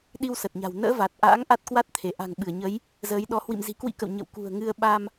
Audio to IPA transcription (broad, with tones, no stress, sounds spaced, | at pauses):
ɗ i˧ w s ə˨˩ t̚ ɲ a̤˨˩ w n ə̰ː˧˥ v a˨˩ t̚ ʔ a̰ː˧˥ ŋ ʔ a˦˥ t̚ k w a˦˥ t̚ t̪ʰ e˧˩ ʔ a̤˨˩ ŋ ɓ ɨ˧˩ ə̯ ɲ ə˨˦ j | z əː˨˦ j ɗ ɔ˨˦ h w ḭ˧˨ m z i̤˨˩ k w ḭ˧˥ k ə̰˧˨ w ɲ ə̰˧˨ w k ṳ˨˩ ə̯ ŋ ɨ˧ ə̯ ɓ a˧ m